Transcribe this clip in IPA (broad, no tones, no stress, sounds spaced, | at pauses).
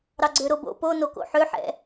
ɾ ɑ ɡ͡ǀ ø ɾ o b o̰ p o n o k o̰ ħ ø ħ ɛ̰